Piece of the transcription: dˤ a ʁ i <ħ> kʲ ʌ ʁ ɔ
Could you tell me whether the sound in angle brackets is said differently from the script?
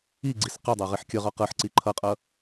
no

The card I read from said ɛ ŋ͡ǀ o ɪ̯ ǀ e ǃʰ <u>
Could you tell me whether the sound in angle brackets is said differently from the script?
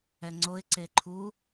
no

